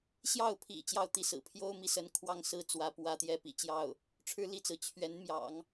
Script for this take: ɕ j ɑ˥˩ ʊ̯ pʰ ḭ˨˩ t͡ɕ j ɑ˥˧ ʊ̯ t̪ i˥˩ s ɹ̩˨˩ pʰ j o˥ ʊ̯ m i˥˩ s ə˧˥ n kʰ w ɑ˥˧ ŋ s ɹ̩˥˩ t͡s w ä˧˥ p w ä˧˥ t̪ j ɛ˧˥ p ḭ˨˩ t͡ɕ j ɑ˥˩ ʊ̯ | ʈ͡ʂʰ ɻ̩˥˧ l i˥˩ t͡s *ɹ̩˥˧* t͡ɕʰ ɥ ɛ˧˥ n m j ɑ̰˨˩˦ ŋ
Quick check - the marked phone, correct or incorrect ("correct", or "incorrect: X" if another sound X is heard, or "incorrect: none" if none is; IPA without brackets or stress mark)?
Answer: incorrect: ɹ̩˩